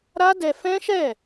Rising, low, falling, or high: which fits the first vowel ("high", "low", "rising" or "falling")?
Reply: high